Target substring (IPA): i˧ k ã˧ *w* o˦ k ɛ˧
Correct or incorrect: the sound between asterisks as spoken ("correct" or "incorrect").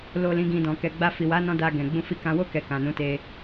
correct